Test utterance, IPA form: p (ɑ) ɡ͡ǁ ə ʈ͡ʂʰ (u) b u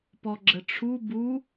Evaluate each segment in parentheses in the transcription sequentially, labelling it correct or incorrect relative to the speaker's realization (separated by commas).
incorrect, correct